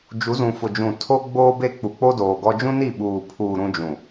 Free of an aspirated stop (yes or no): no